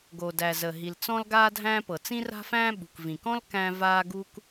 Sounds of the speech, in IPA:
ɡo˩dæ˩ zə˩ ɦi˩lt͡sɔ̃˥lɡaː˥dʱæ̃ː˥ pɤ˩t͡sĩ˥ra̤˥fæ̃ː˥ ɓṳ˩k vĩ˩kɔ̃˥l kæ̃˥ vaː˥ɡu˥k

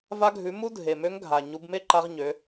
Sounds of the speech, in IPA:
va˧ɡʱʉ˩˧ mu˥dʱe˩mø˧˥ŋ ɡʱa˩ ɲu˩˧bme˥ǃa˧ʁ ɲø˩˧

